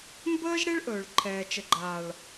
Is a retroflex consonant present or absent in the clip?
present